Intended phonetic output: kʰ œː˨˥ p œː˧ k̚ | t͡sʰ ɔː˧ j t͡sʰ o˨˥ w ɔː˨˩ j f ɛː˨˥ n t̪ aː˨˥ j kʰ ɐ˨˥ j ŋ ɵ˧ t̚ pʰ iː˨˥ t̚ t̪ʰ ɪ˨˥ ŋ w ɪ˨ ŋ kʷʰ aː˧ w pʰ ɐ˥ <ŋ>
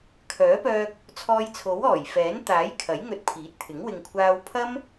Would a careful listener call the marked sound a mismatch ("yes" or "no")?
yes